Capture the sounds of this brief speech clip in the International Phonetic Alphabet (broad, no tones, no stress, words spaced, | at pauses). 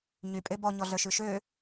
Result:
ɲypʼe bɔɲɔɮœʃʉ ʃø